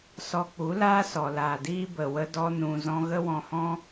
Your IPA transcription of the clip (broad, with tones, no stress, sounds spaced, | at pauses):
s ɔ˧ k͡p u˨˦ l aː˦ s ɔ˨ l aː˨ d iː˦ b ə˨ w ə˧ d ɔ˧ n ũ˧ z ɔ̃˦ ɣ ə˦ w ɔ̃˧ h ɔ̃˦